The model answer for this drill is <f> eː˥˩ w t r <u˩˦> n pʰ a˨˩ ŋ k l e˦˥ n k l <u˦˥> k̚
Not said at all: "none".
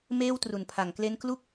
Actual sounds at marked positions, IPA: m, u˨˩, u˥˩

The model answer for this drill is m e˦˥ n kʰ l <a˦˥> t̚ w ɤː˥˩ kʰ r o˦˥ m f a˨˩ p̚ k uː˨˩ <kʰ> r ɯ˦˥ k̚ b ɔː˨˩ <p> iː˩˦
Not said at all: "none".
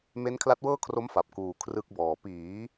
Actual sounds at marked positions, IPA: a˦˥, kʰ, p

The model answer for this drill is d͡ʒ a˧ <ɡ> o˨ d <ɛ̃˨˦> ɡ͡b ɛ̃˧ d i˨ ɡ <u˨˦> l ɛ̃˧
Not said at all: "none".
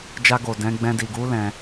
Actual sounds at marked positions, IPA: ɡ, ɛ̃˨˦, u˨˦

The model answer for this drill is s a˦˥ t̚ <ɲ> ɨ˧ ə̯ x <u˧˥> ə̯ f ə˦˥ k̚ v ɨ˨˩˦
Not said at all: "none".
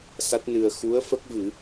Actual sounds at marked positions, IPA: n, u˧˥

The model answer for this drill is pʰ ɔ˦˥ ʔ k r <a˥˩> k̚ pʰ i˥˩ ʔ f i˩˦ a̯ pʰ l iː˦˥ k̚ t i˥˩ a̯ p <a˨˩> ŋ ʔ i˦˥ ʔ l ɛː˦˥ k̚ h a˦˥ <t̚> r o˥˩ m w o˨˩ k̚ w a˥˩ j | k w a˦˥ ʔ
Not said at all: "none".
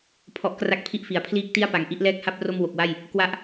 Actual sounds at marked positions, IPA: a˥˩, a˨˩, p̚

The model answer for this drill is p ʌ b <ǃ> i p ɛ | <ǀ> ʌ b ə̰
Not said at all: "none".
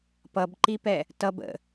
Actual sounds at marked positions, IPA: ǃ, t

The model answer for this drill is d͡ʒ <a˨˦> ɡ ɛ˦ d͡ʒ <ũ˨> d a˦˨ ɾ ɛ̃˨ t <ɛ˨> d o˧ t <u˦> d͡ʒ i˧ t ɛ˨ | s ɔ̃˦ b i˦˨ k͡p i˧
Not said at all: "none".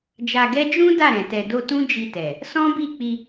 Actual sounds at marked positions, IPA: a˧, ũ˦, ɛ˨, ũ˦

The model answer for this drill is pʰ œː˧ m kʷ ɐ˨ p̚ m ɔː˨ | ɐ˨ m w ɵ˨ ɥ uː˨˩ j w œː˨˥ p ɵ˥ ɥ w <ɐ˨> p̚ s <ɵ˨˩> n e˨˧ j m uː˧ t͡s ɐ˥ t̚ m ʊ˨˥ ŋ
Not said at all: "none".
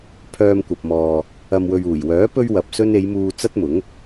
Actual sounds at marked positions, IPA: ɐ˨, ɵ˥

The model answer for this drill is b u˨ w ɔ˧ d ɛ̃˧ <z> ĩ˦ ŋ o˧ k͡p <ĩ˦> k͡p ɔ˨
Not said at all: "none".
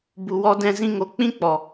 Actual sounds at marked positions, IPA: z, ĩ˦

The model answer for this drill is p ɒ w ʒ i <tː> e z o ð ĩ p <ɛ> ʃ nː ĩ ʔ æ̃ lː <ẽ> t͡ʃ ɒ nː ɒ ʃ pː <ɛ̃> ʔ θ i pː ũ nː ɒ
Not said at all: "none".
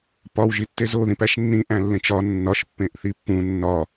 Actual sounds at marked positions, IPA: tː, æ, ẽ, ẽ

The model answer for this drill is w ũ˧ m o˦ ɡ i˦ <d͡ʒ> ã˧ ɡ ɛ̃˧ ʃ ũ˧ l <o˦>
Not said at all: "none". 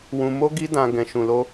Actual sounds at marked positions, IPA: d, o˦

